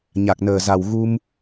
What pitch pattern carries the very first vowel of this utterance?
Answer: low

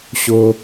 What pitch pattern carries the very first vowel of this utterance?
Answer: high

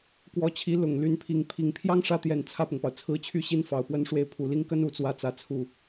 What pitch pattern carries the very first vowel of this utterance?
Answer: rising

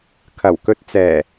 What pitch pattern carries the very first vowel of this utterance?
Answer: low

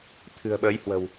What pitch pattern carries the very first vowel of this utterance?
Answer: low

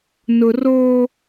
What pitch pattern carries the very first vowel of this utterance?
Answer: low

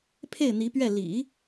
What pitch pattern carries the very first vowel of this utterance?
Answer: falling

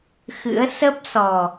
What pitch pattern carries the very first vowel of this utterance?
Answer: rising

